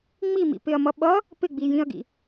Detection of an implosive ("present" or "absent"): present